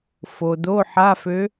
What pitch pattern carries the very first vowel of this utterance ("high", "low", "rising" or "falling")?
low